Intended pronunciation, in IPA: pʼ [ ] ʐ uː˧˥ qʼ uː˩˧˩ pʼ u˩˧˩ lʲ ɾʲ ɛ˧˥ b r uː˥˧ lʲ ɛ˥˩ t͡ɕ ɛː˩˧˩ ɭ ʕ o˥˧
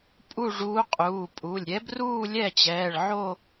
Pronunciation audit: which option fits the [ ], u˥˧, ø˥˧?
u˥˧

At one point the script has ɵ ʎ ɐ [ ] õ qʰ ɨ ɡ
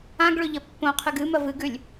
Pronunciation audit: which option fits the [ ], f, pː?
pː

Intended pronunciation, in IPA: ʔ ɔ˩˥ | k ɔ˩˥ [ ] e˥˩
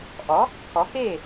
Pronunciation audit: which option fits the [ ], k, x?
k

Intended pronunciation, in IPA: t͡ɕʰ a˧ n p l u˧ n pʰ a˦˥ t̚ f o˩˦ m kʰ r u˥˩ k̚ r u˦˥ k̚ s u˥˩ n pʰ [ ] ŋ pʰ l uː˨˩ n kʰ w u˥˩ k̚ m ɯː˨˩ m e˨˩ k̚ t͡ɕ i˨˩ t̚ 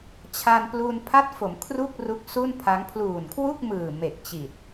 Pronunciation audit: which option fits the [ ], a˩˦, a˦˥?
a˦˥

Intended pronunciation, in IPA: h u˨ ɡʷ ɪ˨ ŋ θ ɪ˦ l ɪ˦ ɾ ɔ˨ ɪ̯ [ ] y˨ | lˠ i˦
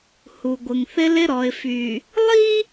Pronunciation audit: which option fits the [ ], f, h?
f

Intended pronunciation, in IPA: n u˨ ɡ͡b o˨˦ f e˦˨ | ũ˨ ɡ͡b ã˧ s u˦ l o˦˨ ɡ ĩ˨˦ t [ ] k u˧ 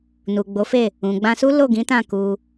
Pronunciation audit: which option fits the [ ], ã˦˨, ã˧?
ã˦˨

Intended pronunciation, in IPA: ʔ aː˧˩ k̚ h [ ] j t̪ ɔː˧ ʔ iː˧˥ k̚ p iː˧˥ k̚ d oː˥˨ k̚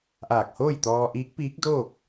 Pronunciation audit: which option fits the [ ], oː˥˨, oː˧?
oː˥˨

